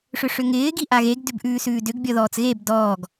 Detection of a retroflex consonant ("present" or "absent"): present